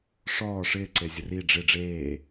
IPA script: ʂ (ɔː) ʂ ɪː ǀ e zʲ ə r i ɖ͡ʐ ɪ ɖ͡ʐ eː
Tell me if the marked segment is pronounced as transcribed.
yes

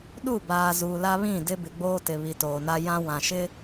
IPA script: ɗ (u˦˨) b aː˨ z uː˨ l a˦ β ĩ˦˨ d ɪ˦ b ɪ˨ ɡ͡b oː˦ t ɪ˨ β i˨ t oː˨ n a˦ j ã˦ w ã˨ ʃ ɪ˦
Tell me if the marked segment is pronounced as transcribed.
yes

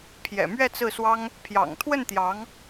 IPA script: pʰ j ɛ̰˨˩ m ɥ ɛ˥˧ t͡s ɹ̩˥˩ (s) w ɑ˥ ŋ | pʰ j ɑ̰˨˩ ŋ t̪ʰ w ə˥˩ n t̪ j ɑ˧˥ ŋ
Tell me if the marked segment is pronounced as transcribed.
yes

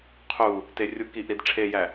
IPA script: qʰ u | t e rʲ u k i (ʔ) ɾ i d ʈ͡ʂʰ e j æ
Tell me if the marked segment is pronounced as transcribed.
yes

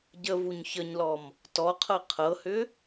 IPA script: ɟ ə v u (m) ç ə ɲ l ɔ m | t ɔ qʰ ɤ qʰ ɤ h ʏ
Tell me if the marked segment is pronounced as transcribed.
no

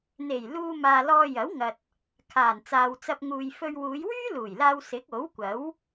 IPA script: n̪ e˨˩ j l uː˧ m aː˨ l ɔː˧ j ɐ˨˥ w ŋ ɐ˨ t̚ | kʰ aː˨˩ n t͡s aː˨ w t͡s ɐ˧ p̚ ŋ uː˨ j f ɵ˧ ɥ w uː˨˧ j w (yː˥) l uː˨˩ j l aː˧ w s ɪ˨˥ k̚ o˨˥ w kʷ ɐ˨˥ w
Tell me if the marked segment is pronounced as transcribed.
yes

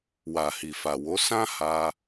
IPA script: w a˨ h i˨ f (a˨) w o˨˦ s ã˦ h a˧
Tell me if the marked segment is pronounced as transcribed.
yes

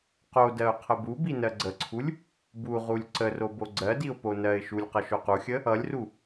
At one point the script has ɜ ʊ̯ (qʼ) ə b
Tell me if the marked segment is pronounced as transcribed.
no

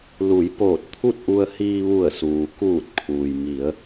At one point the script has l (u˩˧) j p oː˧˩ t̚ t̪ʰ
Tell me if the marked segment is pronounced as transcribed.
yes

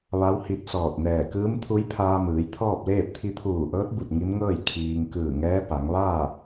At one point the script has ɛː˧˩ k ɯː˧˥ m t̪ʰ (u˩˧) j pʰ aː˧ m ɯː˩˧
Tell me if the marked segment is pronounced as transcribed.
no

